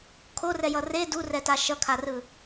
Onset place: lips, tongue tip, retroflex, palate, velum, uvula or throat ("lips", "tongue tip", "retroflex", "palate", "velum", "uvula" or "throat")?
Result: velum